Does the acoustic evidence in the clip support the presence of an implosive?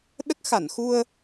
yes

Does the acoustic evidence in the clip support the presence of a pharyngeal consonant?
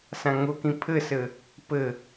no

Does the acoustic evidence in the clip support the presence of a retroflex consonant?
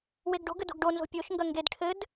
yes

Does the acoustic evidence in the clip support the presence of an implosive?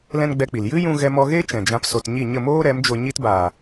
no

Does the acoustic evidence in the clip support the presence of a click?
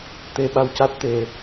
no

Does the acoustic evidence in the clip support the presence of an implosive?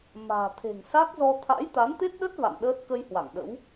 yes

